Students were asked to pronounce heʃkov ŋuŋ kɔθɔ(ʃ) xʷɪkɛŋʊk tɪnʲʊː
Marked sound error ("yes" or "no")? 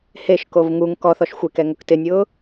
no